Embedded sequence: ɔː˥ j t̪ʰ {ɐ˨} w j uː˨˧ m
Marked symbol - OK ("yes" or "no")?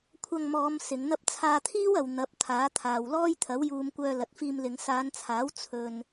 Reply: no